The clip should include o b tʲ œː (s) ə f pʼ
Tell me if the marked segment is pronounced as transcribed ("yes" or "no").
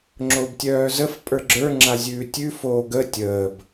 no